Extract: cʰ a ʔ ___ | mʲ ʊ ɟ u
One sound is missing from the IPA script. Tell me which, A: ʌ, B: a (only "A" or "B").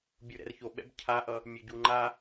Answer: A